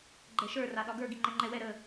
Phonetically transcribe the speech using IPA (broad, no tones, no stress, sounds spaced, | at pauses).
ɡ͡ǃ ɛ ʃ ə˞ r a ɗ ɒ ɡ ə˞ ɡ i ŋ͡ǃ ɛ ŋ͡ǃ ɛ w ɛ ɾ ə